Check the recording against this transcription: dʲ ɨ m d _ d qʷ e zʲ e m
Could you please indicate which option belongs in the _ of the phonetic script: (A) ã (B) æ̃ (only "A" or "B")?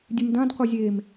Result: A